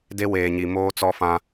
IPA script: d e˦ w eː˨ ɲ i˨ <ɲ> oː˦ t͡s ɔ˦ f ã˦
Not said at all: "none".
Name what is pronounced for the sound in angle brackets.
m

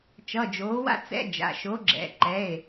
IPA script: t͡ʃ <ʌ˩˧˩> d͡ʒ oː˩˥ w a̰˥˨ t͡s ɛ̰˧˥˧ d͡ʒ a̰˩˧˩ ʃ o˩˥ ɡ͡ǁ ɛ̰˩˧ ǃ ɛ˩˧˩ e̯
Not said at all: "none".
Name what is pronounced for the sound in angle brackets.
ʌ˩˧˩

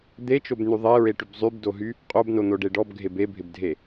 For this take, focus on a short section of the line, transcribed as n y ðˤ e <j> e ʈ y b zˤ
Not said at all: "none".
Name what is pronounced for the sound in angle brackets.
ɹ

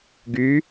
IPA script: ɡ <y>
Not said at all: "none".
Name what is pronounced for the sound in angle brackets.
y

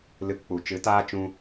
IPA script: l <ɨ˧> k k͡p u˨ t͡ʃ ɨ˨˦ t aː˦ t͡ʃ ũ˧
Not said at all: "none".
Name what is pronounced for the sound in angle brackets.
ɨ˧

